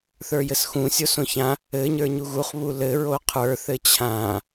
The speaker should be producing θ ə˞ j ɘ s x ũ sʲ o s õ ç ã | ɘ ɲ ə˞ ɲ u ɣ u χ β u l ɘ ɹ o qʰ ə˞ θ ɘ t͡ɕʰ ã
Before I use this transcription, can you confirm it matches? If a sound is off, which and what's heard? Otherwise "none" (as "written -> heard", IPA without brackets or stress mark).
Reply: none